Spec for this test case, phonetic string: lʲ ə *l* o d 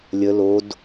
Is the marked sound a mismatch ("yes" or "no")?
no